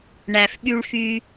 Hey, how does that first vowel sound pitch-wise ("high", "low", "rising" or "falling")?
low